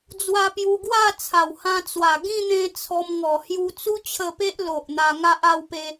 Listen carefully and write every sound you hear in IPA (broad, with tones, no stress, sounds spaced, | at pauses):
d͡z w a˧ p j u˧ ɡ w a˥˧ t͡sʰ a˨˩ w h ã˧ t͡s w a˨˩ ɡ ĩ˥˧ n̪ ẽ˧ t͡sʰ ɔ˧ m ŋ ɔ˨˩ h j u˧ t͡s u˦ t͡ɕʰ ə˧ p e˦ ʔ l o˨ ʔ n̪ a˧ ŋ a˦ ʔ a˧ w p e˧